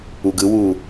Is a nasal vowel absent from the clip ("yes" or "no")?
yes